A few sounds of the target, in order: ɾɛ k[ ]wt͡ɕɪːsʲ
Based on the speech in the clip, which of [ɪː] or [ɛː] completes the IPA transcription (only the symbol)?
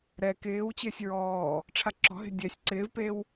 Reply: ɪː